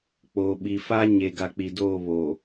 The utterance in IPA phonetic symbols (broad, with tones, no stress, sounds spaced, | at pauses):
k͡p oː˨ ɓ i˨ f a˦ ɲ e˨ ɡ a˨ k͡p i˨ d oː˦˨ β o˨